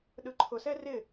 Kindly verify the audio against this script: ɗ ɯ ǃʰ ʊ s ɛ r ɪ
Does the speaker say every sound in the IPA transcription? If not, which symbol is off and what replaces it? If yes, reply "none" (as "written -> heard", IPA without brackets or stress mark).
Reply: none